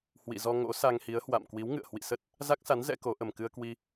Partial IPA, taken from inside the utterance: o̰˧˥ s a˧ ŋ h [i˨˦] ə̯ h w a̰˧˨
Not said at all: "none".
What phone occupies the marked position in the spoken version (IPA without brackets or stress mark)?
i˨˦